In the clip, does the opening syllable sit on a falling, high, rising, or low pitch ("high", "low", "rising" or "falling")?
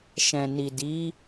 low